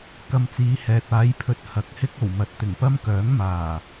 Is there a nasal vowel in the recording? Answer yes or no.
no